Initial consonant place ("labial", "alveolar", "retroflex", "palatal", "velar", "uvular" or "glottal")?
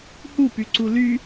glottal